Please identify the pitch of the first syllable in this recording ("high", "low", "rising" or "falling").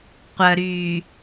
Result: low